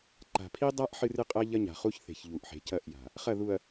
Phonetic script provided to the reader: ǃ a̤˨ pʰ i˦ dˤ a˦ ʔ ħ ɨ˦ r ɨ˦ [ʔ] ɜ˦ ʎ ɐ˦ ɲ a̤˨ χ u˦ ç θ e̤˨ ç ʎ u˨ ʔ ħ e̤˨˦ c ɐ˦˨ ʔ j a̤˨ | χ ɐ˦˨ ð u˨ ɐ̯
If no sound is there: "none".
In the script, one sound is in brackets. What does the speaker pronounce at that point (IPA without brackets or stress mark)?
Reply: qʼ